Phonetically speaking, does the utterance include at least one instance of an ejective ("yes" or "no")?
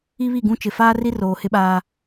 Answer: no